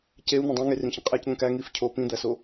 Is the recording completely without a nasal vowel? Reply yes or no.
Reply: no